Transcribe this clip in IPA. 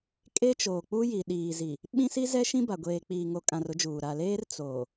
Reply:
kʼe˦t͡ʃoː˨k͡pu˦ji˨ ɗiː˨zi˨ | ɓĩ˦si˦ zɛ˦ʃĩ˦ ba˨ɡʷeː˨k͡piː˨ ŋo˨kʼã˨r ʊ˦d͡ʒuː˨ ɾa˨leː˦r t͡soː˨

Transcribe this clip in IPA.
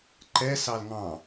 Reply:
ǃɛ sɑlŋɑ̃

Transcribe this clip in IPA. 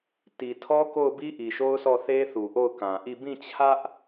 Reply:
ti˨tʰɔ˦ko˦˨ʊ̯bi˦ ʔi˨ʃo˦ʊ̯sʰɔ˦˨θe˦ θu˨ʔo˦˨ʊ̯kã˨ʔi˦˨ bĩ˦˨t͡ɕʰä˦ʔ

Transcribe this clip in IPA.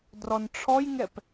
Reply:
drɔnʈ͡ʂʰɔjŋɛp

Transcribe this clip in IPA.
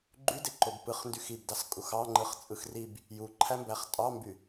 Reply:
ɡ͡ǃydeǃob pɯχndyx ibdɑs kʼuxɑŋ͡ǃɯχ t͡sʼɯxrib | juǃʰæmbæχ tʼɑmby

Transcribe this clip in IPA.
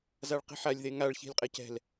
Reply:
zaɭqi̤ħalʲ ðeŋaɭ çi̤lʲqʼecɛ̤l

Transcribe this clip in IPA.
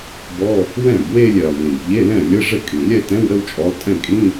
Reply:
bɔ˧˥˧ | wɛ̃˥˩bwe˥˧lʲɛ˩lˠ ʎĩ˩bʎe˧˥˧lɛ̃˥˩ lʲə˧˥˧ʐə˥˩kʼĩ˩ lʲɛ˥˧tɛ̃˧˥˧wɾə˥˧wt͡ʃʼɔ˨˦lˠ tʼɛ̃˥˩kʼĩ˧˥˧

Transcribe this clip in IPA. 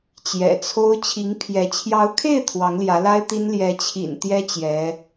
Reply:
t͡ɕjɛ̰˨˩t͡sʰo˥ʊ̯ t͡ɕʰi˧˥ŋpʰjɛ˧˥ t͡ɕʰjɑ˧˥ʊ̯kʰe˥˩ɪ̯ t̪ʰwɑ˧˥ŋljä˧˥la˥ɪ̯t̪i˥n ljɛ˧˥t͡ɕʰḭ˨˩n t̪jɛ˥ t͡ɕjɛ˧˥

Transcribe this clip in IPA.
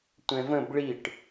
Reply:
tʷɛ̃və̃b ɭiʈ

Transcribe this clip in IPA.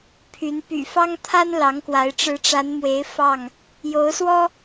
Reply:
pʰy˨˦n py̰˨˩ fɑ˦ŋt̪ʰa˦n lɑ˨˦ŋkwa˨˦ɪ̯ ʈ͡ʂɻ̩˨˦ʈ͡ʂa˨˦nmwe˨˦ɪ̯ fɑ˥˨ŋ | jo˨˦ʊ̯swɔ˦

